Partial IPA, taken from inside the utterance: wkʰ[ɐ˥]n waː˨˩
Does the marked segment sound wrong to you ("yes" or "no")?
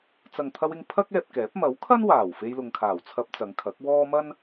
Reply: no